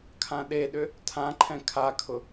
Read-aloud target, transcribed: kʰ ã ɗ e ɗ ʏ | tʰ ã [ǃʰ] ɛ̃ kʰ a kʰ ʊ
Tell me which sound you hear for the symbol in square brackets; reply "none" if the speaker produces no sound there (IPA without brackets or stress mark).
ǃʰ